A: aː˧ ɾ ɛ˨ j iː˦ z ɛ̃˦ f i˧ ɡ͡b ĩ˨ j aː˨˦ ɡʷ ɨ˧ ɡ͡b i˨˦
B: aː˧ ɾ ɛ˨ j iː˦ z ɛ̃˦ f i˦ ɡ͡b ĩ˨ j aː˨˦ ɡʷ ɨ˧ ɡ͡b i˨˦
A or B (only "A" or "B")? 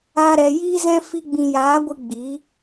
A